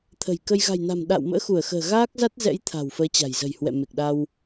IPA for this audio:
t̪ʰə̤˨˩jkə˧j ɣa̤˨˩jna̤˨˩m ɗa̰ː˧˨wmə̰ː˧˥xu˧˩ə̯xə̤ː˨˩ ɣaː˦˥k̚ za˦˥t̚zɛ̰˧˥jt̪ʰa̤˨˩w fəː˨˦t͡ɕa̤˨˩jzə̤˨˩jhwɛ̰˧˨ me˨˩k̚ɗa˧w

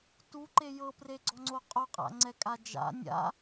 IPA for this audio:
tuǃe jɤpreɡ͡ǀɔŋ͡ǀo qʼoqʼa̰ŋ͡ǀɛkʼa d͡ʒa̰ nʲa̰

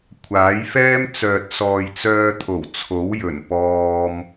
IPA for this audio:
kʷʰaː˨˥jfɛː˥m t͡sœː˨t̚sɔː˨j t͡sœː˧t̪ʰo˨˩w t͡sʰo˨˥w jɵ˨˩npɔː˧m

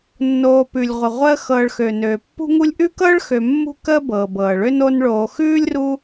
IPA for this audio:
nːoː˨pʉ˩lʲʁʷə˩ ʁʷəː˦xɤː˨ɭ xø˩nøː˩ pːṳ˦ŋu˦lʲʔʉ˥kɤː˥ɭ xø˨mːṳ˦kəː˦bɤː˩b ɤː˩ɭø˦n o˦nɭoː˨ xʉː˥lʲru˦

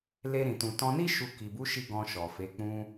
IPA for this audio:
le˧ɾĩ˨tũ˨ tɔ̃˧ni˦ ʃu˧ ki˨bu˨˦ʃi˧ ɡɔ̃˧ʃɔ˨fe˨˦ k͡pũ˧

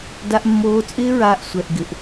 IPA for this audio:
da˧ʔmːoː˧t͡sʼɪː˦ɹaː˧ʔ sʷɛ˨ʔ ɡɪ˨ʔ

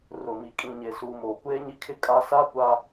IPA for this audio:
rʊ˨mi˨ kʼĩ˨ɲe˨suː˨m oː˨kʷeː˦ɲi˦kʰɪ˦ kʼa˦ sa˦kʷa˦

